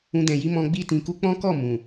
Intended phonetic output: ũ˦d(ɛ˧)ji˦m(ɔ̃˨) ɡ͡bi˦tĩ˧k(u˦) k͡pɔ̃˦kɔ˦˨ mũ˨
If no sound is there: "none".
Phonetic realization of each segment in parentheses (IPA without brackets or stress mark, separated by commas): ɛ̃˧, ɔ̃˦, u˦